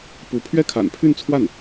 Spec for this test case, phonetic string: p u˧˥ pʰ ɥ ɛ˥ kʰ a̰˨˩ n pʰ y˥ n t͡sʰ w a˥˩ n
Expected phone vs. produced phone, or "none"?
y˥ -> y˥˧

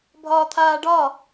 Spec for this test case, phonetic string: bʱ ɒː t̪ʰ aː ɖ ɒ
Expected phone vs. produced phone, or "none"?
none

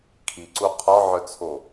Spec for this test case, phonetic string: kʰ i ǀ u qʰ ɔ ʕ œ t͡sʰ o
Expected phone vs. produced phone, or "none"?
none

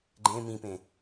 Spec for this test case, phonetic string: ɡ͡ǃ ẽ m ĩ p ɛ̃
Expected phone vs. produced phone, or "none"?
ɛ̃ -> ẽ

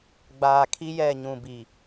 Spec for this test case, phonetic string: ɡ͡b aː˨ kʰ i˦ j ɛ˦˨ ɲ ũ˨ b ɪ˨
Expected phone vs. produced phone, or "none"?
ɪ˨ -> i˨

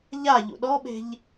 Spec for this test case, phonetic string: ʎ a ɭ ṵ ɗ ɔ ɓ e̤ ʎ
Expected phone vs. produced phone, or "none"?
ɭ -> ʎ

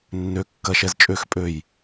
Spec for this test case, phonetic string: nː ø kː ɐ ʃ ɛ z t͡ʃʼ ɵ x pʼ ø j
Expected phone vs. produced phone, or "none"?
ɵ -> ø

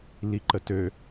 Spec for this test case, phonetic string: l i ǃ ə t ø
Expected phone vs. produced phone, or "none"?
none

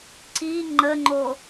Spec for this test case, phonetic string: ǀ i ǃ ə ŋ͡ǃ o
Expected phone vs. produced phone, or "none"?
ǃ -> ŋ͡ǃ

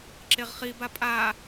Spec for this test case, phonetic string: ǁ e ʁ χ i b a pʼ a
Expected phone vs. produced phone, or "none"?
none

